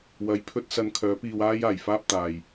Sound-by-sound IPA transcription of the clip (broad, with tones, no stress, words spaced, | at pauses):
wɐ˨˧j pʰɵ˥t̚sɐ˧n kʰœː˨˥ piː˧waː˥jaː˨˩jfaː˥p̚ t̪aː˨j